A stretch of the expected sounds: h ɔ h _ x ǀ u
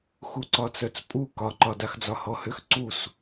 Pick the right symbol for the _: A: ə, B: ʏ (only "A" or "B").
B